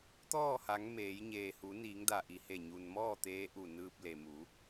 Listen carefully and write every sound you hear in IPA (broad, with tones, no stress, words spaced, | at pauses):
t̪ɔː˥˨ha˩˧ŋ meː˩˧j ɲeː˩hu˩˧niː˩˧ŋda˩ ʔi˩he˧˩ ɲu˩nmɔː˥˨ t̪eː˧˥ʔu˧˩nɯː˧p̚le˩ mu˩˧